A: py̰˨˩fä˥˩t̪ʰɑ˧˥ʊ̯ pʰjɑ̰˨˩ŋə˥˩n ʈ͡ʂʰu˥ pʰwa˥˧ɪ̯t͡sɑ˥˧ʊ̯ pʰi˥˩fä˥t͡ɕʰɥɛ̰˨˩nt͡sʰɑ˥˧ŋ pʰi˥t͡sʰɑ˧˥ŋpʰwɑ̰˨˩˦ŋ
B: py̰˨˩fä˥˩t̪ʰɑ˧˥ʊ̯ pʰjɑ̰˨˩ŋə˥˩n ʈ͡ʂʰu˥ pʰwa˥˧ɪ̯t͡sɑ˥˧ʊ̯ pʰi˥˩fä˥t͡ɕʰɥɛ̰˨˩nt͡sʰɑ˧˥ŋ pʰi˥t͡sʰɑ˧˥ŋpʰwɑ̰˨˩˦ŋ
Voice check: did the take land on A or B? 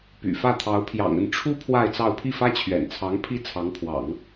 B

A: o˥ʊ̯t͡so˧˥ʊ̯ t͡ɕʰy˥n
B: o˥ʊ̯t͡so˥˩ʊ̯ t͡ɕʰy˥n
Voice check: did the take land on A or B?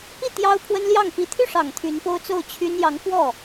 B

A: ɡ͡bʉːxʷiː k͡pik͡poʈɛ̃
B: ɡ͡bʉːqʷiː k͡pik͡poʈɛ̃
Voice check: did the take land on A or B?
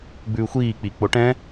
A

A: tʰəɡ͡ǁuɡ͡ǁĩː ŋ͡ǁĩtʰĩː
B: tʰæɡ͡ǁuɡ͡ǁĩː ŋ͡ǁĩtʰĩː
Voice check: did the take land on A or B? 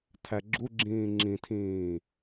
B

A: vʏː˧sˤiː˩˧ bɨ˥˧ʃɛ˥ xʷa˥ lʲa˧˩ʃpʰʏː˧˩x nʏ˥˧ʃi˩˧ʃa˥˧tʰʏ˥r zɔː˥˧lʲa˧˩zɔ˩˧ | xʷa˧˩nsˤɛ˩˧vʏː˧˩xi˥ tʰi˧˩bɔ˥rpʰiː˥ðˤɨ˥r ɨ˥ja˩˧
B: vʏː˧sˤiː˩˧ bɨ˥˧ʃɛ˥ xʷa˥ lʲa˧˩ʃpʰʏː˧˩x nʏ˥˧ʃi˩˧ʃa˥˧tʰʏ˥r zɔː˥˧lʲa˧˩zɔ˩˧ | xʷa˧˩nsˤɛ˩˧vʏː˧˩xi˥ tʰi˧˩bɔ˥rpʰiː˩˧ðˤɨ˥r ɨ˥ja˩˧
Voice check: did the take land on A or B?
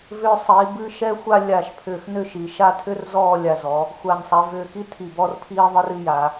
A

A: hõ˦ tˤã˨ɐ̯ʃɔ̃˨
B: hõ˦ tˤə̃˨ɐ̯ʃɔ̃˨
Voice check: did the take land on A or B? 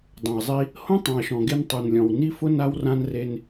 A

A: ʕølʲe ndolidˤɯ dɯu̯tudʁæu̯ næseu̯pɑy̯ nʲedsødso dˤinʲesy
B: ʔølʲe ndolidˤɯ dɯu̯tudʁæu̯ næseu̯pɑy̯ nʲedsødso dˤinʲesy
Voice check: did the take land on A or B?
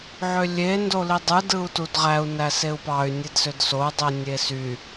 A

